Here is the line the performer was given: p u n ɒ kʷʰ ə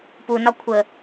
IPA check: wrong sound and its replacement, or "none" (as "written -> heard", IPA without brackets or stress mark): none